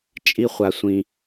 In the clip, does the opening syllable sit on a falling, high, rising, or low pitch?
high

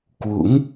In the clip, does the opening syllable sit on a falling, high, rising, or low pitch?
rising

